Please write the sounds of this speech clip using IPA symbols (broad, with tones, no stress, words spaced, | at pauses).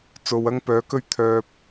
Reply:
t͡so˨wɐ˥ŋpœː˨˥kɵ˥ɥ t̪ʰœː˨p̚